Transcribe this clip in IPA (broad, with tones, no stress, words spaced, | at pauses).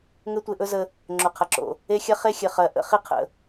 ŋɘ˦tʷe˧ʔɵ˦zə˧ | ŋ͡ǁo˨qʰɐ˨ǁo̰˨ | e˧xʲɐ˦ χe˦xʲɘ˨χɜ˨ʔə̰˦ χi˦qʰə̰˨